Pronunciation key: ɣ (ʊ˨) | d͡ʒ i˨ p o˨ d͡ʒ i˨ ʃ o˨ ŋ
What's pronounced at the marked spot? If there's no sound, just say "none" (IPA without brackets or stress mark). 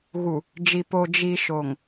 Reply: u˨